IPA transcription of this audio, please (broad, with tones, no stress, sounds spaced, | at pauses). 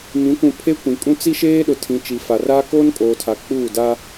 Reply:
m ĩ˨˦ kʷ ũ˨ pʰ e˦ kʷ ĩ˨ kʼ ũ˦ t͡s i˦ ʃ eː˦ ɗ ʊ˨ tʰ ĩ˨ t͡ʃ i˨ f a˨ r aː˦ k oː˦ n kʼ oː˨ tʰ a˨ k͡p uː˦˨ d a˦